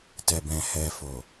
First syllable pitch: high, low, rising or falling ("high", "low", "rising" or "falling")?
low